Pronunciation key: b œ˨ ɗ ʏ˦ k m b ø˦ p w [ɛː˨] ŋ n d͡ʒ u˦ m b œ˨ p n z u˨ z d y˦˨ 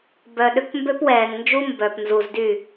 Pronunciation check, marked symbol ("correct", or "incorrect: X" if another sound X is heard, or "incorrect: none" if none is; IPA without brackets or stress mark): correct